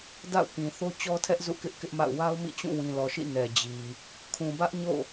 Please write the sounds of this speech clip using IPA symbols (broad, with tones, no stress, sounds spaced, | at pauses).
d a̰˦˨ ʊ̯ k ĩ˨ θ o˦ t͡ɕ ɔ˦ tʰ ɛ˦ ʔ z ṵ˦˨ k ɪ˦ ʔ k ɪ˦ ʔ m a̰˦˨ ʊ̯ w a˦ ʊ̯ m ḭ˦˨ t͡ɕ ũ˦˨ w ĩ˨ l ɔ˨ ʃ ḭ˦˨ n ɛ˨ d͡ʑ i˨ | kʰ ũ˨ b ä˦ ʔ ɲ o̰˦˨